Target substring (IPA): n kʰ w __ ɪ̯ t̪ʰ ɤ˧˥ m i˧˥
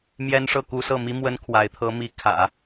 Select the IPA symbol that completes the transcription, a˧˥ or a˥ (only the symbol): a˧˥